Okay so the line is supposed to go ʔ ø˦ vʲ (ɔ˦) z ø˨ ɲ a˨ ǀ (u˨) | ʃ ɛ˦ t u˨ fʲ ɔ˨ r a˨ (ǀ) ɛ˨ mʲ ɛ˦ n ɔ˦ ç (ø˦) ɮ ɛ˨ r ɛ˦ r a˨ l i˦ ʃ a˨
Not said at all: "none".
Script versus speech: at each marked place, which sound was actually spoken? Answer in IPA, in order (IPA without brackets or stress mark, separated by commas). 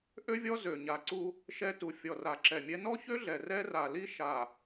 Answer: ɔ˦, u˦, ǁ, ø˦